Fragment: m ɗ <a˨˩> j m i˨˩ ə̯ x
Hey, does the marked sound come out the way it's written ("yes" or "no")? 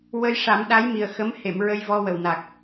no